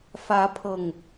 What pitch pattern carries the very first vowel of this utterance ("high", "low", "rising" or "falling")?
rising